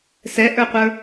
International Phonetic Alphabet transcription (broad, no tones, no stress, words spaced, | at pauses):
sɛʔə˞qʷə˞